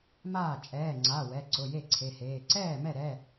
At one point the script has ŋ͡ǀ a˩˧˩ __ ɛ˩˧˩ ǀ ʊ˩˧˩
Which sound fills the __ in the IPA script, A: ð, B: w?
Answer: B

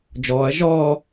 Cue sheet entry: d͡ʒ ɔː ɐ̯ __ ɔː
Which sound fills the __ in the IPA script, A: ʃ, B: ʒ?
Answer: B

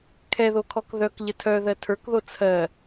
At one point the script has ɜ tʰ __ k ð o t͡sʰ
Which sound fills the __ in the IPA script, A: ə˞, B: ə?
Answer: A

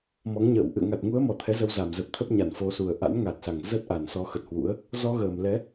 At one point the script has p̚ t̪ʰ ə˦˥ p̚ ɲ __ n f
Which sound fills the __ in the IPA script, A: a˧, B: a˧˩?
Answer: B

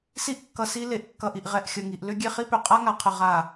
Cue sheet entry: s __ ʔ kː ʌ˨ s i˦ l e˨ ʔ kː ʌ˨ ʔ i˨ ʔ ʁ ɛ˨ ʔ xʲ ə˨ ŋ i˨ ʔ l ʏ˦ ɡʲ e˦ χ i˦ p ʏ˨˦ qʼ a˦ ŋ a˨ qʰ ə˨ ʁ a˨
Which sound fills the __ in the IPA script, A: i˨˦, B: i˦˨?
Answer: B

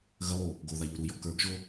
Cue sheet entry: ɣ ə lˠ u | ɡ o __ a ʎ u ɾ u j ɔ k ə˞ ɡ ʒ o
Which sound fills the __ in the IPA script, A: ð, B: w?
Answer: A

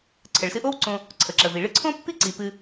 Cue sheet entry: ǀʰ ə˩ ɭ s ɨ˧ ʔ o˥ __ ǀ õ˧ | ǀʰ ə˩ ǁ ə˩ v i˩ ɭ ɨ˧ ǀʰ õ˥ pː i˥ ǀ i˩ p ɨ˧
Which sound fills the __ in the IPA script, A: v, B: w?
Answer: B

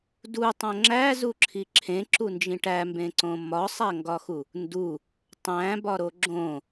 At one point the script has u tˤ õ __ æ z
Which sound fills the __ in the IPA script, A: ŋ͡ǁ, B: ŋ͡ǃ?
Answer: A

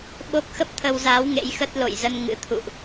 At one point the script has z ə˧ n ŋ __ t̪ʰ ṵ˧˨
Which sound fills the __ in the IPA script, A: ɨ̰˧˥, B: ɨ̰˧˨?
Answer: A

